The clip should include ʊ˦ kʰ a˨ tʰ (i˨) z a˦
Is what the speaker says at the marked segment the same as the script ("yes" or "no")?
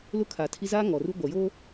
no